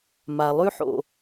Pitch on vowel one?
low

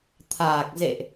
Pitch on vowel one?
low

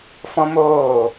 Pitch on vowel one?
high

